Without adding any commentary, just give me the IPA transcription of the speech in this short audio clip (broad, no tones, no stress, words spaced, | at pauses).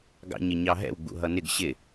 ɡɑ̰ɲɪɲɑɦɛ̰w ɡ͡bṵɦʌnɪɡ ɕɪ